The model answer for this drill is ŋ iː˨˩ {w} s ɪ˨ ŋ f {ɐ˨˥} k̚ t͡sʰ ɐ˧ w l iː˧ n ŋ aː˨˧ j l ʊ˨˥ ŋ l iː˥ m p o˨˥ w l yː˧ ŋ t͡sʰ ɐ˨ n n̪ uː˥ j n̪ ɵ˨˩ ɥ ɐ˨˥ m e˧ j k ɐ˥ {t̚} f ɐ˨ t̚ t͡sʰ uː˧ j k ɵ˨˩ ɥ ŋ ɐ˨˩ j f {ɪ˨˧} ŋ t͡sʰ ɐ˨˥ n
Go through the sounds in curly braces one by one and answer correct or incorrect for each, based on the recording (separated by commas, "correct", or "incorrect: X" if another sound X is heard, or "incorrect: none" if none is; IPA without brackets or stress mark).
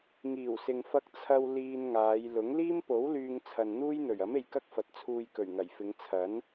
correct, incorrect: ɐ˧, incorrect: k̚, correct